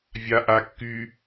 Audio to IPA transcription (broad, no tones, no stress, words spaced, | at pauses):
vʲaʔakːy